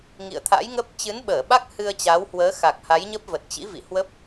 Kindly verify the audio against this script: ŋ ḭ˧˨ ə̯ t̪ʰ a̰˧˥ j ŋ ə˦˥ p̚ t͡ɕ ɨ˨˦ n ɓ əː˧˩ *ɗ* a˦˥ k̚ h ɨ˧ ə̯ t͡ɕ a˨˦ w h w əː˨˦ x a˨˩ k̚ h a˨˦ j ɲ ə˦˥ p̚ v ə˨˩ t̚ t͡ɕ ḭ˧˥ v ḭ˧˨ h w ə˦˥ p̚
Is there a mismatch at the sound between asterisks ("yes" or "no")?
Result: yes